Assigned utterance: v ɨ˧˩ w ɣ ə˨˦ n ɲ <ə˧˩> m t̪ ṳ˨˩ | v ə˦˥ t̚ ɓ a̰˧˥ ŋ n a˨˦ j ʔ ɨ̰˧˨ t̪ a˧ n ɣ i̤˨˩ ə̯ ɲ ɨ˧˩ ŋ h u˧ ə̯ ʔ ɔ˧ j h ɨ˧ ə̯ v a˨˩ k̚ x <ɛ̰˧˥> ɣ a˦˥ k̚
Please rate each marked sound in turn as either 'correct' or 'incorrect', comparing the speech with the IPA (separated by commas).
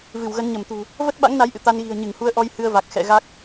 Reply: correct, incorrect